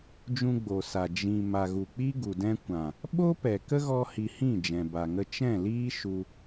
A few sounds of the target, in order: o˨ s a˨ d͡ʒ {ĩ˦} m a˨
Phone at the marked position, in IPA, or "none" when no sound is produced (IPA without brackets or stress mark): ĩ˨